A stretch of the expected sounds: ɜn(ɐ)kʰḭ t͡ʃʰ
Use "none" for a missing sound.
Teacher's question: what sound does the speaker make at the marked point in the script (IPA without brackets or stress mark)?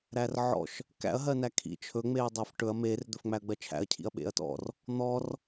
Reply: æ